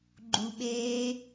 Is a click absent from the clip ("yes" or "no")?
no